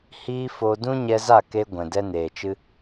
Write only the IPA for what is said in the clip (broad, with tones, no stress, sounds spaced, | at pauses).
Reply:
h iː˦ f o˧ d ũ˦ ɲ ɛ˧ z a˦˨ k e˧ ɡʷ ɛ̃˨ d ɛ˦ n eː˨ t͡ʃ ɨ˦